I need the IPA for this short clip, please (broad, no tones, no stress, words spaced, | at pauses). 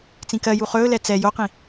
t͡sĩkɜ juχɵːlɛ t͡sɛ joqĩ